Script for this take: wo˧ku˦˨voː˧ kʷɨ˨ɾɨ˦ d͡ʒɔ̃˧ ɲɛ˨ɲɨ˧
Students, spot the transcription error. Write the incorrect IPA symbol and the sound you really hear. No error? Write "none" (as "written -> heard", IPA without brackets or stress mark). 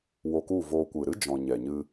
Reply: none